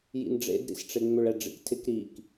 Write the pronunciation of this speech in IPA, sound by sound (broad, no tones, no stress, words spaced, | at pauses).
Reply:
jḭnɖ͡ʐḛdɾḭsʈ͡ʂe ŋ͡mʏɭɛɖ͡ʐḭktʰɪk ɾik